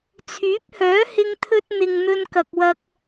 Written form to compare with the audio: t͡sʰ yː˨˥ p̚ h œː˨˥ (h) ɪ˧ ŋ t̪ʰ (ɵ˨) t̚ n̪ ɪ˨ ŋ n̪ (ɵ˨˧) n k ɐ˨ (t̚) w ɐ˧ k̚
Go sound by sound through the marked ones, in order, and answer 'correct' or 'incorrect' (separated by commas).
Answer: correct, incorrect, incorrect, incorrect